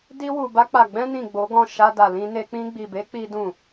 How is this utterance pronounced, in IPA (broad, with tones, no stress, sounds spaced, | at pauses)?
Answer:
d i˧ w u˨ b a˧ k͡p a˨ ɡ͡b ɛ̃˧ n ĩ˨ ɡ͡b o˨˦ ɡ ɔ̃˦˨ ʃ a˧ d a˨ l ĩ˧ n e˧ k͡p ĩ˧ ɡ͡b i˨ b e˨˦ k͡p i˦ d ũ˦˨